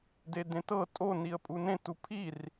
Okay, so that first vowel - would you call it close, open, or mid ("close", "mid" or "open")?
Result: mid